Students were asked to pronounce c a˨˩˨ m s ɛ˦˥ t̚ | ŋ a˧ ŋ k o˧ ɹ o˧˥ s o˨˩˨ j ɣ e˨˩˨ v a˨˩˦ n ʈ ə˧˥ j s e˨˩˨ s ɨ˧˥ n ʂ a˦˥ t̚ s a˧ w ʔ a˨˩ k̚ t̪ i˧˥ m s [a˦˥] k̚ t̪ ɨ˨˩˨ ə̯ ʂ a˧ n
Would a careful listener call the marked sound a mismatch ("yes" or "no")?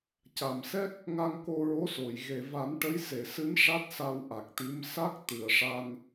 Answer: no